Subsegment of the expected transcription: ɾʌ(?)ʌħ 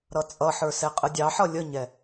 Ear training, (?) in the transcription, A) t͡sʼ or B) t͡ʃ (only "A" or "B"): A